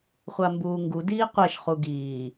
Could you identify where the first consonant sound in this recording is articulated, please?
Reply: uvular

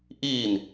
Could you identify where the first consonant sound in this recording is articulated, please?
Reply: glottal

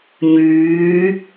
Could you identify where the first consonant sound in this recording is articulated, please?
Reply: palatal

